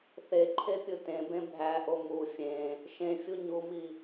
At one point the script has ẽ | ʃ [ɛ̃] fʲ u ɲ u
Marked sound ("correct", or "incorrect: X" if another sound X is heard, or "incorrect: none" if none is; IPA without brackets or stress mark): incorrect: ẽ